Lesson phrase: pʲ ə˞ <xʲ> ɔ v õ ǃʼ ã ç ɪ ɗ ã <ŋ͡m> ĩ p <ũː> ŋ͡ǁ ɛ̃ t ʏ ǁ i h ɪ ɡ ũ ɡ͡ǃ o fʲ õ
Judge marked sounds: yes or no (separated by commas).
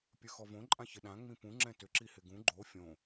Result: no, yes, no